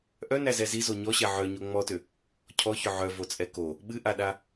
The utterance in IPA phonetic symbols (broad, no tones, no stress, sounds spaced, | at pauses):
ʔ œ n æ z ɛ z i z o ɲ ɔ ɕ ɛ ʕ œ ɲ o ŋ͡m ɔ t ʏ | cʰ ɔ ç ʏ ʕ œ v o t͡sʼ ɛ k o | ɓ ɨ ʔ a ɗ a